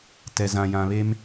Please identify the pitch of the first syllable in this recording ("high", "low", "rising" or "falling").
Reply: low